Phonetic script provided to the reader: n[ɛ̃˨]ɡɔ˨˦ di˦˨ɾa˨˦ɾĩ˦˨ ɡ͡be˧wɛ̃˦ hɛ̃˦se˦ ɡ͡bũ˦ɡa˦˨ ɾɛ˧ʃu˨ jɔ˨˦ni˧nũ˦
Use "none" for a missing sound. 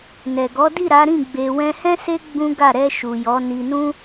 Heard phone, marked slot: ɛ˨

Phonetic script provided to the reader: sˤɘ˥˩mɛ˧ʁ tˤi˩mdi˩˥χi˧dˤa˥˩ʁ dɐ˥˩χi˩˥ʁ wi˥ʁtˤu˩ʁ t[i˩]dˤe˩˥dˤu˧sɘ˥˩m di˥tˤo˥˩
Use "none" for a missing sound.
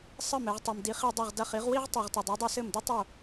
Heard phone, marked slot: i˩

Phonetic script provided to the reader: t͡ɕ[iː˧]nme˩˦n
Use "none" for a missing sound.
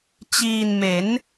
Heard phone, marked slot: iː˧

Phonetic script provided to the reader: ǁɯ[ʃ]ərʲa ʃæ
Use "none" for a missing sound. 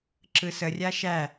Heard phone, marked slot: s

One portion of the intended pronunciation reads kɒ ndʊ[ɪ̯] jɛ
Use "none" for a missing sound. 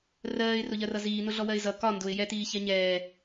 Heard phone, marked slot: ɪ̯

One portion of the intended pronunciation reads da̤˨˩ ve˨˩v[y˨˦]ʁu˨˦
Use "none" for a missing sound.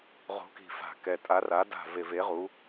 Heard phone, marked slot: e˨˦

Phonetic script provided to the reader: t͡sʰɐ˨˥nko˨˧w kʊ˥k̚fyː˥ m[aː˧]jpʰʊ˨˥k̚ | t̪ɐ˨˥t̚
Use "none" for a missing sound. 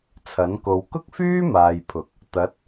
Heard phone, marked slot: aː˨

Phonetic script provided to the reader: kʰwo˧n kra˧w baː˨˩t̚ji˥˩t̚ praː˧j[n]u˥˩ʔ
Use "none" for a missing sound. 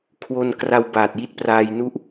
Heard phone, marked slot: n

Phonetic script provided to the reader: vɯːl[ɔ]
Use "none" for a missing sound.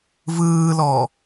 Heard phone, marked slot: ɔ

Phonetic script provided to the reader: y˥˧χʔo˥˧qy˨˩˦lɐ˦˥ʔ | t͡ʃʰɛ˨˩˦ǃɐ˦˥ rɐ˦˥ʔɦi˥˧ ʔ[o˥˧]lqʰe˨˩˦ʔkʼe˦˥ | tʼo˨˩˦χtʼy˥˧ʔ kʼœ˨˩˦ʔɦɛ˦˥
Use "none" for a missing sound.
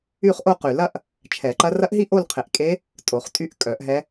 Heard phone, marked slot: o˥˧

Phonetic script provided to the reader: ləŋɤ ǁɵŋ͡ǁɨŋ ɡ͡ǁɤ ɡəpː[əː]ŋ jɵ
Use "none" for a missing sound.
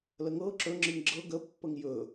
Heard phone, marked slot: ə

